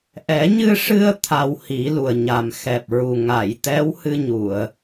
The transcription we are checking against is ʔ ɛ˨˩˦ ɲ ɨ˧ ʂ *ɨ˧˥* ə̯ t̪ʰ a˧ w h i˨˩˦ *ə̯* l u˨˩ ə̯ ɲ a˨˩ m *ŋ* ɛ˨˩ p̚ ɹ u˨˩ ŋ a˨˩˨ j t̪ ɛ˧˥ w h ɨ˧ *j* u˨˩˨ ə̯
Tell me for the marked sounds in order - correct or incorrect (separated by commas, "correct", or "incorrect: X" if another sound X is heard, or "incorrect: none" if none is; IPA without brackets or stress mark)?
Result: incorrect: ɨ˧, incorrect: none, incorrect: x, incorrect: ɲ